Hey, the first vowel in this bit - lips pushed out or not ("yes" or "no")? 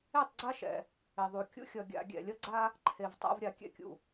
no